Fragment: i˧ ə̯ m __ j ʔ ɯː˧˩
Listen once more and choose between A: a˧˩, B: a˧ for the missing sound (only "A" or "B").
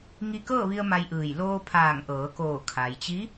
B